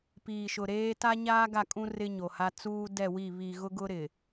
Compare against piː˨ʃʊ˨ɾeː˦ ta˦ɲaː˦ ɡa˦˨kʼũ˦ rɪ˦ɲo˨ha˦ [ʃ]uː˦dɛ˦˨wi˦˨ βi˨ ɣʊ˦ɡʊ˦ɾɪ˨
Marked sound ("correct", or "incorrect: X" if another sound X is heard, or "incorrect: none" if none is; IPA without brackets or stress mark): incorrect: t͡s